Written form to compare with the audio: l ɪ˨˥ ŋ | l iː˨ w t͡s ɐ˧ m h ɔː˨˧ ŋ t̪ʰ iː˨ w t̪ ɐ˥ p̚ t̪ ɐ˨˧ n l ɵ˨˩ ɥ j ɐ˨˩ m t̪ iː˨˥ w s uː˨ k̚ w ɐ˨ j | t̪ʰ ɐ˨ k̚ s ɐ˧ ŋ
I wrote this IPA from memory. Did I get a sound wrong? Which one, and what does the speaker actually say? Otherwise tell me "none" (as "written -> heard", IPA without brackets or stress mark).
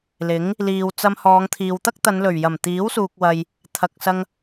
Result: p̚ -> k̚